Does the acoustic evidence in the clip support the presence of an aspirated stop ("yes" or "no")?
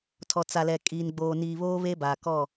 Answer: yes